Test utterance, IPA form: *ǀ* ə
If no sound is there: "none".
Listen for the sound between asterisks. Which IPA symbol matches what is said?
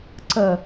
ǀ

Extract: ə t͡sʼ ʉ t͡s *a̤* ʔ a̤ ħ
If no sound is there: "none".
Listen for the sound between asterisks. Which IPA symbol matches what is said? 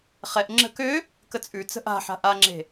ə̤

